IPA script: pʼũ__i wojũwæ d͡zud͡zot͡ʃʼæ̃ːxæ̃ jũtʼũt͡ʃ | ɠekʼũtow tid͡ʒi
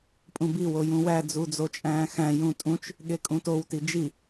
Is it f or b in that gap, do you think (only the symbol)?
b